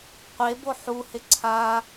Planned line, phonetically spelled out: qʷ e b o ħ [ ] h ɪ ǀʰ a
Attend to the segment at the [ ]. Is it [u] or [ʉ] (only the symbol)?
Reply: u